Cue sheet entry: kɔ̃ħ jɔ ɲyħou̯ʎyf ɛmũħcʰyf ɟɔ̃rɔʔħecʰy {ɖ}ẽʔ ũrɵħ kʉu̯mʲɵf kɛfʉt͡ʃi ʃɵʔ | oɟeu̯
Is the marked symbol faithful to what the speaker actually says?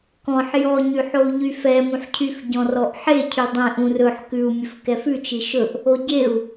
no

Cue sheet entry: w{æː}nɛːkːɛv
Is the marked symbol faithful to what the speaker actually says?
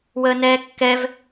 no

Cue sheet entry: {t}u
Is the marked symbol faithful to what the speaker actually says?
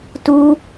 yes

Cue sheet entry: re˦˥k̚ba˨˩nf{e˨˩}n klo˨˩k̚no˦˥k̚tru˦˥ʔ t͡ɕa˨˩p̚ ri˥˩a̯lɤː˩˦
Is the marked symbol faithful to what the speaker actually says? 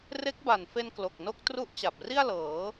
no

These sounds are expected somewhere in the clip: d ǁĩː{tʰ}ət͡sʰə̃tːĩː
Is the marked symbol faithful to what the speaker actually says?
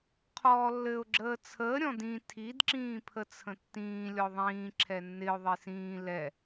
no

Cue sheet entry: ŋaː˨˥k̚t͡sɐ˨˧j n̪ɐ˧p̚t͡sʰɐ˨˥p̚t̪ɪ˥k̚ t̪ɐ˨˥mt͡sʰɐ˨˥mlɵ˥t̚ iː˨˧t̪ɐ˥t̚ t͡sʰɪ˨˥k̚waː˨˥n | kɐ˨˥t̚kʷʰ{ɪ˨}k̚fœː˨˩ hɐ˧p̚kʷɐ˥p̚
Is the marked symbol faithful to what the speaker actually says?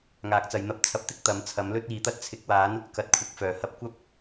no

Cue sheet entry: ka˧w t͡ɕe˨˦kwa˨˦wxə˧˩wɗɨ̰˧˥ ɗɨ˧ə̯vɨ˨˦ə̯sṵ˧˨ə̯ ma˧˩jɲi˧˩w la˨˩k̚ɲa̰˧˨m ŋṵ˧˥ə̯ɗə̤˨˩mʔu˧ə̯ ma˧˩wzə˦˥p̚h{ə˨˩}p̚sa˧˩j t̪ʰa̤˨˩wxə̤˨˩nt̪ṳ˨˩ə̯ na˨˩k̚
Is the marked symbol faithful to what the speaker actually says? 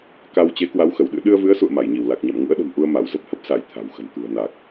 no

